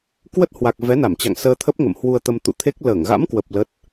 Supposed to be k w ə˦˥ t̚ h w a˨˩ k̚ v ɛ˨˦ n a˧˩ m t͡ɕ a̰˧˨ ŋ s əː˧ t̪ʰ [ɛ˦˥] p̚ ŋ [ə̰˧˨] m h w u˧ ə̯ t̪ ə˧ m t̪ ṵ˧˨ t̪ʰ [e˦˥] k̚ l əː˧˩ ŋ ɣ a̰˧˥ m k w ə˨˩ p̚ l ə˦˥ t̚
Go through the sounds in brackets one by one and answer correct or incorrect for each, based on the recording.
incorrect, correct, correct

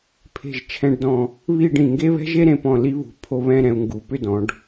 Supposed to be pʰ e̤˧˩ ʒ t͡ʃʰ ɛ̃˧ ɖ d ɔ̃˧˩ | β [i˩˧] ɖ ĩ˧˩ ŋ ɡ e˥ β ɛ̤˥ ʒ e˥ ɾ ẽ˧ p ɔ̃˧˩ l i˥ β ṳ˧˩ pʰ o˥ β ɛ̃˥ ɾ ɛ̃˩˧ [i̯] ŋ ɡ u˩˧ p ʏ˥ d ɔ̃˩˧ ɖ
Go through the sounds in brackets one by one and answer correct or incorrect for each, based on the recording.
incorrect, incorrect

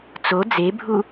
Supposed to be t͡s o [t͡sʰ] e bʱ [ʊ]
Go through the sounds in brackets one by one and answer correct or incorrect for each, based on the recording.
incorrect, incorrect

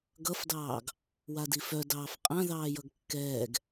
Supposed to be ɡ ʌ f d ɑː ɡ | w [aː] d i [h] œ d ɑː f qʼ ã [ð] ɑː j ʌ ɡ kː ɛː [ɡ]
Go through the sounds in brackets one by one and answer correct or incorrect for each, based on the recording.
incorrect, incorrect, correct, correct

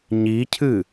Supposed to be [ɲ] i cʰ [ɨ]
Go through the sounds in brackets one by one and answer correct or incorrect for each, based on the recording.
correct, correct

